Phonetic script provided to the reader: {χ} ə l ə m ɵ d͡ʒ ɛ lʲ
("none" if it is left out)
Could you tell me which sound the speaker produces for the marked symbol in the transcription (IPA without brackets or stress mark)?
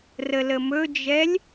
r